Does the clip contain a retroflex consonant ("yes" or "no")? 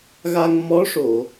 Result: yes